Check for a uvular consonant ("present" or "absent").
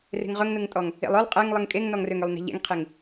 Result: present